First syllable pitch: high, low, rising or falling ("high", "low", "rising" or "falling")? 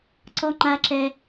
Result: high